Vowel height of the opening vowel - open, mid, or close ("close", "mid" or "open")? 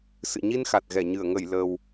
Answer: close